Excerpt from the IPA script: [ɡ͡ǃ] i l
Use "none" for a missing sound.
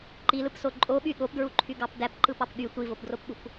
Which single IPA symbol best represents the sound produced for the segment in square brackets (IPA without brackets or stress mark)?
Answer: ǃ